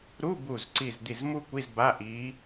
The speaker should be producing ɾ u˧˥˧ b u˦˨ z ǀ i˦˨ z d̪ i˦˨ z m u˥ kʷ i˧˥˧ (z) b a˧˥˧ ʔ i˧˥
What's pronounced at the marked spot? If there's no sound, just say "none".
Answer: z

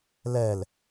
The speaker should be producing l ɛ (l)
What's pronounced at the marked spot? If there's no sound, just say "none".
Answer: l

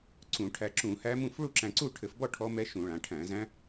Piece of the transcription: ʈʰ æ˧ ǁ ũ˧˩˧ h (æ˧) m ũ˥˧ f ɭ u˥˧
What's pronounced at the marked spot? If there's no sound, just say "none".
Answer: æ˦˥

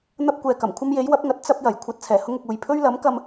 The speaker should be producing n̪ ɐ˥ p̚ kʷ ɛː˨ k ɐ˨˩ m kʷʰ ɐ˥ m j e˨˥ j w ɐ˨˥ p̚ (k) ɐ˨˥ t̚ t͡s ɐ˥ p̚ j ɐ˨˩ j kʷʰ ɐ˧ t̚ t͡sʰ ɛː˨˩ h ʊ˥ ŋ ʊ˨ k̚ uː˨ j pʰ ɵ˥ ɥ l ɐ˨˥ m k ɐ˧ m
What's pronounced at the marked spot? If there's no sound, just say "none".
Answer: ŋ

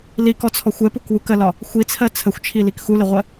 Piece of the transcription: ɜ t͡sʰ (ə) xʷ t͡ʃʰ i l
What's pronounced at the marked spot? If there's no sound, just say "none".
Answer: ə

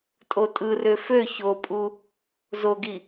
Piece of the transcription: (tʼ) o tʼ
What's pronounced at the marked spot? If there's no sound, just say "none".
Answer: tʼ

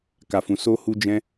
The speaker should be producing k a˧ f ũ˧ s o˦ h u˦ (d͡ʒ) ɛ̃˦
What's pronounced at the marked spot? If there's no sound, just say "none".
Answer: d͡ʒ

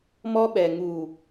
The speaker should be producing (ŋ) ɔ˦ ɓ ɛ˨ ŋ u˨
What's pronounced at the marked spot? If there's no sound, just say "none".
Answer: m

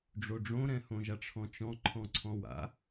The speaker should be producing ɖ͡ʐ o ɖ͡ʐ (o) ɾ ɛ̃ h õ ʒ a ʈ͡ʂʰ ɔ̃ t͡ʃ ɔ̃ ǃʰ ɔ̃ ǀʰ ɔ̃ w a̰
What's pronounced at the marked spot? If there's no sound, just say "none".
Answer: õ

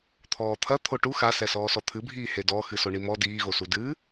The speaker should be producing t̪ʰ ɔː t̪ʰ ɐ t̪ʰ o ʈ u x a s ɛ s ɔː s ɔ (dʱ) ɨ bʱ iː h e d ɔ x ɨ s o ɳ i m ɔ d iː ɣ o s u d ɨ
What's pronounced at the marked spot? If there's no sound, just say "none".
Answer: t̪ʰ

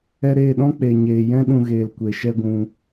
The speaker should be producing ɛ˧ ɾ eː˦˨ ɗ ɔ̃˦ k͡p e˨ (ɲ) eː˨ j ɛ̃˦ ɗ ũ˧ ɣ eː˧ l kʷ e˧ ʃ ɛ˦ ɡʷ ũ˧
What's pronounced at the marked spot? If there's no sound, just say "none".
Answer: ɲ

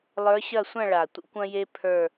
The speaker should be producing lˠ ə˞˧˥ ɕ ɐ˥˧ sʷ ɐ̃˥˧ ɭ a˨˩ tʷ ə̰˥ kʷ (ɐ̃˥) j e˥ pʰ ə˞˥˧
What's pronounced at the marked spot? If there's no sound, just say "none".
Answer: ɐ̃˥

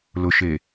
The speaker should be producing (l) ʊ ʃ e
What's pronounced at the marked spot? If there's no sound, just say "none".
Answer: l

